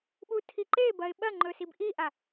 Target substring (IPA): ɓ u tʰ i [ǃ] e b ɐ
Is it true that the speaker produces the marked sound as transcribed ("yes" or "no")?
yes